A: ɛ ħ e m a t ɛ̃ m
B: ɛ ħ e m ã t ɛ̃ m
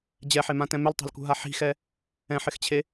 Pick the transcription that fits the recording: B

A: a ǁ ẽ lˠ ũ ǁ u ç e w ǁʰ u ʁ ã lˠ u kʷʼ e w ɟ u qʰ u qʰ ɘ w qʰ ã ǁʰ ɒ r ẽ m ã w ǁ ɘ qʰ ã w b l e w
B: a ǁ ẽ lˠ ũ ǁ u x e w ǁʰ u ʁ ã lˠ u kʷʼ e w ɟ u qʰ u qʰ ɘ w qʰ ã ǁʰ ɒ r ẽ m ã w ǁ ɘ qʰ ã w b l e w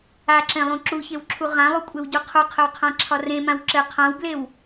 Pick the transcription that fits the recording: A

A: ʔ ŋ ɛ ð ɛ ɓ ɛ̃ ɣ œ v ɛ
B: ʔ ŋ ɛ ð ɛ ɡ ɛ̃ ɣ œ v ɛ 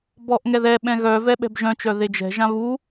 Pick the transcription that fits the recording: A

